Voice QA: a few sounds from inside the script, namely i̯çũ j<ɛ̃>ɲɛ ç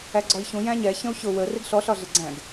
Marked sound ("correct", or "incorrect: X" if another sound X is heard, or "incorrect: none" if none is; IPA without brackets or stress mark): incorrect: æ̃